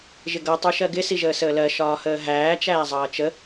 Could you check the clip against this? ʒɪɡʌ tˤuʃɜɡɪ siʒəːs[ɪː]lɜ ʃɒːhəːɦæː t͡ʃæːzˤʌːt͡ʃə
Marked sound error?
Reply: yes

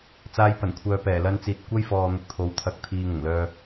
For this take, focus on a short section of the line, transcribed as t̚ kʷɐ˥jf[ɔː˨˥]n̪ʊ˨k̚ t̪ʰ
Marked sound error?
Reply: yes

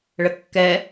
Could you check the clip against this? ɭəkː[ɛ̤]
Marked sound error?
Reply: yes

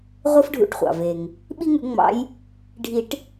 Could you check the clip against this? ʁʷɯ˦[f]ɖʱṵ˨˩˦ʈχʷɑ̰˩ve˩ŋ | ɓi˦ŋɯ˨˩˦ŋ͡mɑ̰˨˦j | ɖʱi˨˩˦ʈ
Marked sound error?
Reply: no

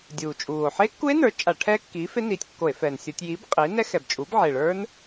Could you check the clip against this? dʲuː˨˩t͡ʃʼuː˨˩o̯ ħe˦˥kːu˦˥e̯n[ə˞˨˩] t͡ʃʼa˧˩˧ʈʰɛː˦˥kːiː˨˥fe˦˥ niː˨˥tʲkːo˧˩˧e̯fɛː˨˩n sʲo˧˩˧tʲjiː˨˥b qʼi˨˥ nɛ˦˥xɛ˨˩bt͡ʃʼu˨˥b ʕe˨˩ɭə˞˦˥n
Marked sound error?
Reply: yes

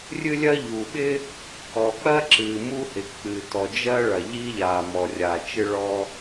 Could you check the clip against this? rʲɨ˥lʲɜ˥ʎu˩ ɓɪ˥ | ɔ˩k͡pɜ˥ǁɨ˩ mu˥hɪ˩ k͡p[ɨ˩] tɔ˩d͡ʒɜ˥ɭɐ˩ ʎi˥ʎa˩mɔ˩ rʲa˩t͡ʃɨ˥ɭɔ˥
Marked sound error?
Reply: no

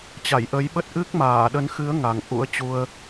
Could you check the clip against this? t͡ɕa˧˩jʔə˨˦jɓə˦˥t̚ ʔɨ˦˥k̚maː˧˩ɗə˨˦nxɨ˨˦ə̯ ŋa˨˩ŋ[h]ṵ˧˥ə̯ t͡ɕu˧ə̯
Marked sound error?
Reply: yes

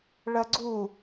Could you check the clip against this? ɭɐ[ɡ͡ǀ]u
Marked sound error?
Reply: no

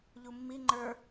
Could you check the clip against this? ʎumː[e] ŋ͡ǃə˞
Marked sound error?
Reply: yes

